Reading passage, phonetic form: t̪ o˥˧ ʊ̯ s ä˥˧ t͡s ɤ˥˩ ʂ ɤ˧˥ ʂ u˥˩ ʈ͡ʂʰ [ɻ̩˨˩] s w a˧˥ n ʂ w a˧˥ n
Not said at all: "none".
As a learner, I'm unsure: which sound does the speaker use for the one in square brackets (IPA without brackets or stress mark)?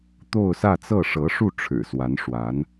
ɻ̩˨˩